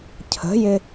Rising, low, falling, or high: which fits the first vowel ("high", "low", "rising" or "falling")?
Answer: rising